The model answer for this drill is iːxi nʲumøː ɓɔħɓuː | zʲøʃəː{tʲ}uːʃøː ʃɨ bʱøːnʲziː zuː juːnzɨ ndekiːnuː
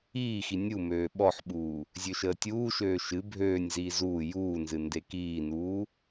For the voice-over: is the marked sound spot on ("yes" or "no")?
yes